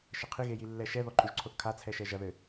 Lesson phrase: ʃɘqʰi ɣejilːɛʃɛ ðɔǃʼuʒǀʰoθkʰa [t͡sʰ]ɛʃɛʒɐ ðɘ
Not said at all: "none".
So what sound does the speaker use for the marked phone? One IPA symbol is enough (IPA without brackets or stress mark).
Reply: t͡sʰ